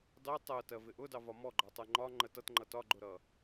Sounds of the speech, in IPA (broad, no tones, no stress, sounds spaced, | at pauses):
dˤ i tˤ ɜ t ɜ v ɪ ʔ ʊ d ɑ v ɒ m ɔ ɡ͡ǃ ɒ tˤ ɜ ŋ͡ǃ ɒ ŋ͡ǃ ə t ʌ t ŋ͡ǃ ʌ t ɒ ɡ͡ǃ ʊ ɾ ʌ